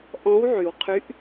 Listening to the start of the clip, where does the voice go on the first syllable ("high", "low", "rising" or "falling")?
rising